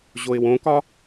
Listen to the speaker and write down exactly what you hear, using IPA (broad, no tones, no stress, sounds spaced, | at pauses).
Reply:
ʑ o ɪ̯ w õ k ɒ